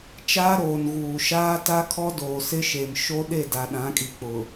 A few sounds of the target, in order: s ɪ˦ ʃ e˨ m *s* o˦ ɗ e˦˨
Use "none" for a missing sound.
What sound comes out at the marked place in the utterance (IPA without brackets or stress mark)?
ʃ